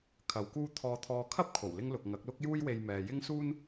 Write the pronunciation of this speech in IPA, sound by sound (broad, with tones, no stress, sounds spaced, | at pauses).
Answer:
kʰ ɐ˨ w k uː˧ t̪ʰ ɔː˨ t̪ʰ ɔː˨ kʰ ɐ˥ p̚ kʰ o˨˩ w l ɪ˥ ŋ l ʊ˨ k̚ ŋ ɐ˨˥ k̚ l ʊ˥ k̚ j uː˥ j w e˧ j m ɛː˨ j ɪ˥ ŋ s uː˥ n